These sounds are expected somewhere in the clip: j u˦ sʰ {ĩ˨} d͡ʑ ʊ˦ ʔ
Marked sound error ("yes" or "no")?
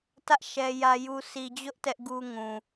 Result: yes